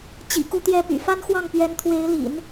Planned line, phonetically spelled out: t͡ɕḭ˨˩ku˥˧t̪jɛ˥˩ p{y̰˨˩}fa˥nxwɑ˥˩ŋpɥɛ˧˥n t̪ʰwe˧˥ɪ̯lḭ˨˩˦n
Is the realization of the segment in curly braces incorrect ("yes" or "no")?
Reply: no